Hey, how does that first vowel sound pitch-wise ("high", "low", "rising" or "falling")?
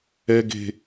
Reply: high